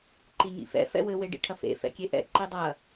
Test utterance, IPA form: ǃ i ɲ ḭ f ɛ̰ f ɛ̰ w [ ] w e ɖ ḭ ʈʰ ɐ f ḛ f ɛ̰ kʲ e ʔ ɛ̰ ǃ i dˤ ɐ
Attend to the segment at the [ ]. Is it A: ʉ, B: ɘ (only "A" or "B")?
B